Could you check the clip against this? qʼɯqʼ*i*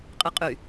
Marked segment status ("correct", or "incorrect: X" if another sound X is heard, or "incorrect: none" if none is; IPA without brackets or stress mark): incorrect: y